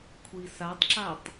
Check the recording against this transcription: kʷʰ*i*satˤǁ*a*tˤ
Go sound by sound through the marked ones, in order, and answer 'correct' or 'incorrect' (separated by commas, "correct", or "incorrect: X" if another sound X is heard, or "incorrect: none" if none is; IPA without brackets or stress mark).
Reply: correct, correct